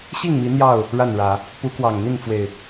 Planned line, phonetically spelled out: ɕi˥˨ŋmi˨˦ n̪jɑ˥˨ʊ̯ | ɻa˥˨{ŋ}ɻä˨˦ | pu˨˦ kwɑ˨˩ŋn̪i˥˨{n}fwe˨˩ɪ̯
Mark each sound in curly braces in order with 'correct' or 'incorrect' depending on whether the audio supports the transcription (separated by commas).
incorrect, correct